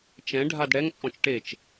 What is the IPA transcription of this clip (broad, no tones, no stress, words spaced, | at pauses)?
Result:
t͡ʃɛ̃ ɖʱadɽɛŋ t͡sʼɔ̃t͡ʃʈet͡ʃ